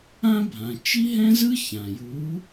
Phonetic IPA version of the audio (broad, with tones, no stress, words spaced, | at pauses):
ã˥ bʱã˩ t͡ʃi˥ɦɛ̃˥zɯ˥ çã˩ju˨˥